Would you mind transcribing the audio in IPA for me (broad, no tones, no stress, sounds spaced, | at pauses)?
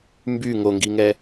m b y ŋ o ŋ ɡ i ŋ ɛ